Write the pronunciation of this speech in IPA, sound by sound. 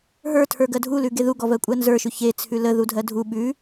ɦ ə˞ tʰ ə˞ ɡ ɜ dʱ u l ʉ ɡ e ð u ɡ ɔ v ɜ kʷʼ ɜ n z ə˞ ʃ ʉ ç e t͡sʰ ʉ l ə ð u dʱ ɜ dʱ u ɓ ʉ

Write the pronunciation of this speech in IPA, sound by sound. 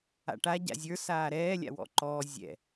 a̰ ʈ a ɟ a̰ zʲ ə˞ s aː ɾ ɛː lʲ a̰ w ɔ̰ ǃ ɔː zʲ ɛ̰

